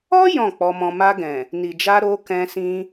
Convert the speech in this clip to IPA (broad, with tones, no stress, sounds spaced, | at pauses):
ɔ˦ j ɔ̃˦˨ k͡p ɔ˧ m ɔ̃˧ m a˧ ɡ ɛ̃˨ | n i˨ d͡ʒ a˧ ɾ o˧ k ɛ̃˧ s ĩ˧